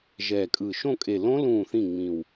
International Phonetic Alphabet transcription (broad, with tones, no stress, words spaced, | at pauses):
ʒɛː˨˩kʼɯː˨˩ ʃõ˦˨kʼe˨˩ lõ˦˥ lũː˦˨θĩ˦˨ ŋ͡mĩ˨˩w